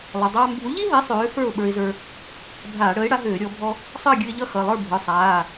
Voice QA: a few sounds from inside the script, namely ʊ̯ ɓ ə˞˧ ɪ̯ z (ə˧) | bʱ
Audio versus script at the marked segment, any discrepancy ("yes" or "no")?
yes